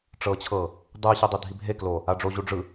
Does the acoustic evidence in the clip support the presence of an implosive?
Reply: no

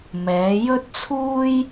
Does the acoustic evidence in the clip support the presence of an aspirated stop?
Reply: yes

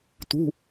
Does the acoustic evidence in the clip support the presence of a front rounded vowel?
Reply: no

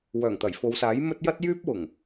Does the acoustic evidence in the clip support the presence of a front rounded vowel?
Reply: yes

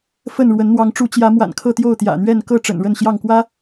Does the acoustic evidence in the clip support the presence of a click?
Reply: no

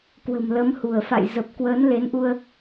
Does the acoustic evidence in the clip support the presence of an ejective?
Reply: no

